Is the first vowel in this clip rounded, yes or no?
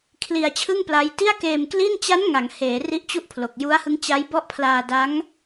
no